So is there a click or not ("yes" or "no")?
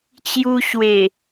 no